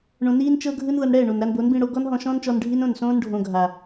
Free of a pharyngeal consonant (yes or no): yes